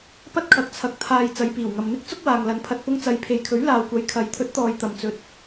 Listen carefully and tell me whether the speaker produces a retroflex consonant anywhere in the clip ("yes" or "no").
no